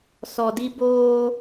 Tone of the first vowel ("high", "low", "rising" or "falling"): low